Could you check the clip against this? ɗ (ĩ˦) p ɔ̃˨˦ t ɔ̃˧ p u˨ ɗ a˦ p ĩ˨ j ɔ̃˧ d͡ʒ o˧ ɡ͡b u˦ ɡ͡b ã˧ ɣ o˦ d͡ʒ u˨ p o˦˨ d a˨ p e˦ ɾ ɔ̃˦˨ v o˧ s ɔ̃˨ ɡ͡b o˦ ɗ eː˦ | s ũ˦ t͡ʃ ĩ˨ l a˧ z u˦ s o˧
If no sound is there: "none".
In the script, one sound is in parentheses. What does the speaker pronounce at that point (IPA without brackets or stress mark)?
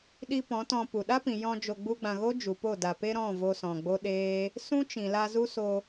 i˦